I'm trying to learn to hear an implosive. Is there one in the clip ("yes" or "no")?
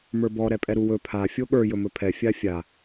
yes